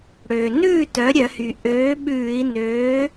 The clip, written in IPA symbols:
ɽ øː˩ n ʉː˥˨ t œ˩˥ ɾʲ œ˧˩˧ h y˩ ʔ øː˩˥ ɓ ʉː˧˩˧ i̯ n øː˩˥

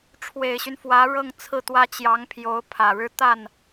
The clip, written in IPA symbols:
ʈ͡ʂʰ w e˨˩ ɪ̯ ɕ y˦ n f w ä˧˥ ɻ ɤ˥˧ ŋ t͡sʰ ɹ̩˥˩ t̪ w ä˥ t͡ɕ j ɑ˧˥ ŋ pʰ j o˧˥ ʊ̯ pʰ ä˨˩ ɻ ɻ̩˥ t̪ a˥˩ n

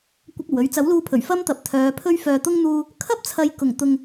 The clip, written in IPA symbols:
kʷ ɪ˧ k̚ ɐ˨˩ w ɵ˨˥ ɥ t͡s ɐ˨˥ w l uː˧ pʰ ɵ˨˩ ɥ f ɐ˥ m t̪ ɐ˨ p̚ t̪ʰ œː˨˧ pʰ ɵ˥ ɥ f œː˨ t̪ ʊ˥ ŋ n̪ uː˧ | kʰ ɐ˥ p̚ t͡sʰ ɐ˨˧ j k ʊ˨˩ ŋ t̪ ʊ˧ ŋ

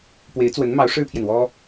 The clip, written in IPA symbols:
p w e˧˥ ɪ̯ t͡s w ə˧˥ n m ɑ˧˥ ʊ̯ ʂ ɻ̩˥ pʰ j ɛ˨ n w ɔ˥

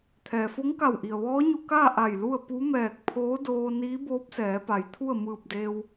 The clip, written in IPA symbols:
t̪ʰ ɛː˩ f o˧˥ ŋ k a˧˩ w ʔ i˩ ə̯ ʋ ɔː˧˥ ɲ u˧ k aː˥˨ ʔ a˧˩ j l u˥˨ ə̯ p u˧˥ m ɛː˧˩ k̚ pʰ oː˧˥ d oː˧ n iː˧˥ b oː˧˥ p̚ s ɛː˩˧ p a˩˧ j t̪ʰ u˥˨ ə̯ m ɯː˧˩ p̚ d eː˧ w

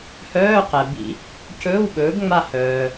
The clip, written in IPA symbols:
h œː˧˥˧ q ɛ˩ b ḭ˨˩˦ | c ɵː˧˥˧ w ɓ ɵː˩˥ b ŋ͡m a˦˨ h œː˩

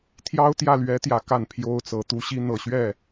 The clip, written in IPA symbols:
t̪ʰ j ɑ˥ ʊ̯ t̪ j ä˥˩ l ɥ ɛ˧˥ t̪ j ä˨˩ k a˥˩ n pʰ j o˥ ʊ̯ t͡s ɤ˧˥ t̪ u˥ ɕ i˥ n̪ ɤ˨˩ ɕ ɥ ɛ˥˩

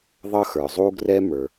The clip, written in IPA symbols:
ðˤ ʌ˥ x ə˞˩ zˤ u˥ ɡ r ɛ˥ m ə˞˩

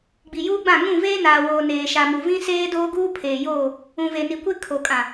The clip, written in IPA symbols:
ɡ͡b i˨ j uː˦ ɡ͡b ã˦˨ ŋ ũ˦˨ v eː˦ n aː˨ w oː˨ n eː˨ ʃ a˨ m u˨ v ĩ˦ s eː˦ d oː˦ ɡ uː˦ pʰ eː˨ j oː˦˨ | ũ˨ v e˨ n i˨ kʷ e˦ kʰ o˨ kʼ ã˨

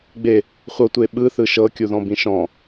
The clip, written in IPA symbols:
ɡ͡b e | χʷ ɤ tʷ e ɓ ɯ θ ɯ ʃ ɤ kʲ u ð ɔ̃ b ĩ ʃ ɔ̃

